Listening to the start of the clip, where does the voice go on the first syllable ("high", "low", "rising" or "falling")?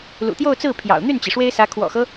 low